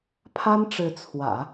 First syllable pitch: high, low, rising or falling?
high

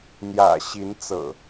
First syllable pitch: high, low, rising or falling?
low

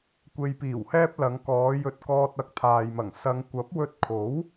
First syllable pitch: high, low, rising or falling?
low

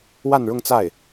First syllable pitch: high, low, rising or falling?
falling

